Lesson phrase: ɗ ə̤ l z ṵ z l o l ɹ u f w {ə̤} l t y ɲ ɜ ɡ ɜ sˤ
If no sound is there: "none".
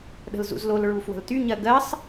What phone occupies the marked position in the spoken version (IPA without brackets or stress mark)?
ə̤